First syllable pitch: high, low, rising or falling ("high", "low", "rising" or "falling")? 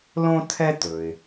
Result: high